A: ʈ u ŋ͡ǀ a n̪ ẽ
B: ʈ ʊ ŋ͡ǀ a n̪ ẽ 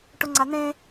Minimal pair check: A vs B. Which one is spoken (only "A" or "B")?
B